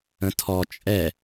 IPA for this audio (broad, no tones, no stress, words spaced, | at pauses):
ə̃tʰɔ t͡ʃʼɛ